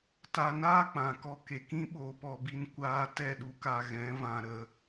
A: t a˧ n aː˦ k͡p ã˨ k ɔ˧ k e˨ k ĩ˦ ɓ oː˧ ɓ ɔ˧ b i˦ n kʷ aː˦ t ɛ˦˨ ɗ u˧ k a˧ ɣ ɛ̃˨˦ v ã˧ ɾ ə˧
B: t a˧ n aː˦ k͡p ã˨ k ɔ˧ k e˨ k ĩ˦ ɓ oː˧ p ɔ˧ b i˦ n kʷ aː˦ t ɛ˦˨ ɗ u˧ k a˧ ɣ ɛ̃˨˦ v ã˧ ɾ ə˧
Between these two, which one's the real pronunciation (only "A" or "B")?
B